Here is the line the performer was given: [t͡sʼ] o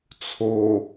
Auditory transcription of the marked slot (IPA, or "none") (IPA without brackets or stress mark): t͡sʰ